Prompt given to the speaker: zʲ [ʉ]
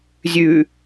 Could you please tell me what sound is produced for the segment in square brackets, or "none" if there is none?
ʉ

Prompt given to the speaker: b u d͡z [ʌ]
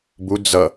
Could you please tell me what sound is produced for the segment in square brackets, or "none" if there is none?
ʌ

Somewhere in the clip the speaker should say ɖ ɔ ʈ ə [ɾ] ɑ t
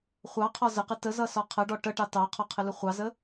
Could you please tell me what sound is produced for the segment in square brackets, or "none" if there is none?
ʈ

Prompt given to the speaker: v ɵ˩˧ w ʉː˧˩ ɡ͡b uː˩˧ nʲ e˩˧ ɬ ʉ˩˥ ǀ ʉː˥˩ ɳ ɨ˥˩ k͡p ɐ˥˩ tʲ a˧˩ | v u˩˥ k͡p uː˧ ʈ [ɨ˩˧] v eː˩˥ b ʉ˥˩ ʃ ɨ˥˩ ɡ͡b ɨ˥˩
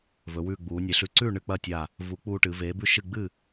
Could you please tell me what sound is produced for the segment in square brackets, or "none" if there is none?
ɨ˩˧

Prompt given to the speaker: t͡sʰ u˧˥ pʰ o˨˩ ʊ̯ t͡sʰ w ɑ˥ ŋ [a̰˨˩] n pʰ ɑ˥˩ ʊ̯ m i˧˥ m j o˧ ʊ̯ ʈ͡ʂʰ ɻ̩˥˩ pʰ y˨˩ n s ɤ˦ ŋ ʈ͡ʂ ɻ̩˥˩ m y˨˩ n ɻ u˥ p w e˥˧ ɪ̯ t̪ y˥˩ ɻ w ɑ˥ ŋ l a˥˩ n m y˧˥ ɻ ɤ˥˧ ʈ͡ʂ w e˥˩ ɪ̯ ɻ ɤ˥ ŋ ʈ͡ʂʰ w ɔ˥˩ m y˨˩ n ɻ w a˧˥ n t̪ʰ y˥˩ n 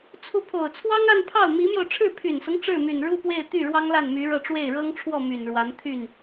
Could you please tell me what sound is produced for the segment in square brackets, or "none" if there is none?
a˥˧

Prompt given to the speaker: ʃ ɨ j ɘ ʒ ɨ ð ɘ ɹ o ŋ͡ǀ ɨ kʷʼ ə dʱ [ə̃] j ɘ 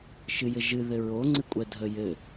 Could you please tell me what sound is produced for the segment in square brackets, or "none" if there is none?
ə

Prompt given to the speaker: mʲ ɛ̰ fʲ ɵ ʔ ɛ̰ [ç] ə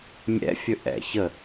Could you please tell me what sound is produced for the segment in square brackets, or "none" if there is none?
ç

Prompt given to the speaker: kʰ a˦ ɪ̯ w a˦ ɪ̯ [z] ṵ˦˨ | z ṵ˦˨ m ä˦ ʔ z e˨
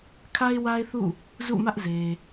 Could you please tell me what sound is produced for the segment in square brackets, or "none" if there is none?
θ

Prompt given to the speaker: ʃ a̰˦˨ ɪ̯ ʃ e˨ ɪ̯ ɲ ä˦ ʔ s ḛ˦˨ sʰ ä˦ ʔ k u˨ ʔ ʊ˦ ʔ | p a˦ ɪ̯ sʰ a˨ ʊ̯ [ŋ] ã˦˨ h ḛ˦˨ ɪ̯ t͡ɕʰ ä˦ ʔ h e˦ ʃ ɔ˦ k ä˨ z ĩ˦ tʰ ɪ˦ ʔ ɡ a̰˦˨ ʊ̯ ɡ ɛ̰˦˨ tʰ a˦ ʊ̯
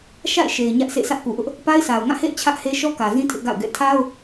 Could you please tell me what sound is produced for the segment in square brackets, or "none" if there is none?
ŋ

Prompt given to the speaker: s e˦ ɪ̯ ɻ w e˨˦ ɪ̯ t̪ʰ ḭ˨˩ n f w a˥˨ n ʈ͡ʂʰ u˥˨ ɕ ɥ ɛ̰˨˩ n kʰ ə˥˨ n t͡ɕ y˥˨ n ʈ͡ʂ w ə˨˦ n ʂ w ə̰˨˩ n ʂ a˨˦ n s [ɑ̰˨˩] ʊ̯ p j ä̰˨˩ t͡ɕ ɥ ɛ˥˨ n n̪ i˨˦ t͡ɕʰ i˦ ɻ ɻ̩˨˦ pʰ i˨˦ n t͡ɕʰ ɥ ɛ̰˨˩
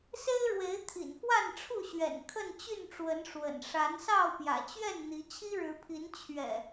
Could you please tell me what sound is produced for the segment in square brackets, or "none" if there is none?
ɑ˥˨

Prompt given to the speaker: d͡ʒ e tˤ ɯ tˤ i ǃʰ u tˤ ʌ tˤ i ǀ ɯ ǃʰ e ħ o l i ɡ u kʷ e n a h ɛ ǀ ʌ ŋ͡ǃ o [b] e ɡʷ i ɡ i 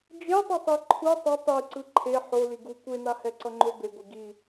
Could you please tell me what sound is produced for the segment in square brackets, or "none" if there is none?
b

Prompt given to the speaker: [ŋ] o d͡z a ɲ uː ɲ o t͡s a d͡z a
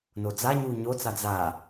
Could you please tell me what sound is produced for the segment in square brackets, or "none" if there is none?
n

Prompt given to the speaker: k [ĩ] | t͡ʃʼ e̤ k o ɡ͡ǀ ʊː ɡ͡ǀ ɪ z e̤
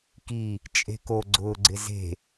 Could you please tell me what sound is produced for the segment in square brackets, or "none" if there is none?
i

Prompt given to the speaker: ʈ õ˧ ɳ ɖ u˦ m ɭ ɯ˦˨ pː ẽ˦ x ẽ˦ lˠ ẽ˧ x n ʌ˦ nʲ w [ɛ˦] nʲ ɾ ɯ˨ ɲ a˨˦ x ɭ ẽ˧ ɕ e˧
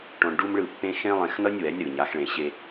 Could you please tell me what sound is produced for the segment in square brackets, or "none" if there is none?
ɛ˨˦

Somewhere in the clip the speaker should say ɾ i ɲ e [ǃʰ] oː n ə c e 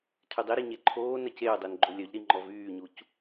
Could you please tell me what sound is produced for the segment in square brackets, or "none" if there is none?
ǃʰ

